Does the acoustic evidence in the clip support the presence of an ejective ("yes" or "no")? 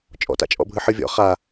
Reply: yes